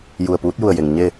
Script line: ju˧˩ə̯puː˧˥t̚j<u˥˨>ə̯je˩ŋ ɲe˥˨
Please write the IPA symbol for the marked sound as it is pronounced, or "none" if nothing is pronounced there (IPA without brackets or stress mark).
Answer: u˧˩